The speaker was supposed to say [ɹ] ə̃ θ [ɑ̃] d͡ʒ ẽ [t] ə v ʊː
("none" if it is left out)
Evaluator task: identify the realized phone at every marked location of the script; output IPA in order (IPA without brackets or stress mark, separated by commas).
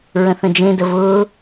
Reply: ɹ, ə̃, d